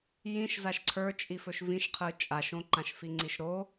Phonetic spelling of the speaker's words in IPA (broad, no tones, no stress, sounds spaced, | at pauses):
j ĩ ʃ z a ʃ ǀʰ ə˞ t͡ʃʼ i f ɵ ʃ v ĩ ʃ qʰ ɯ t͡ʃʼ a ʃ õ ǃ ã ʃ f i ŋ͡ǀ i ʃ ɾ o